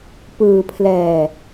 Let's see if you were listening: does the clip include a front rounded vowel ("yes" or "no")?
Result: no